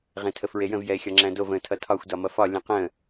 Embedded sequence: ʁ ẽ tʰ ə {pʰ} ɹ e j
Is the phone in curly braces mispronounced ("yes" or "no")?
yes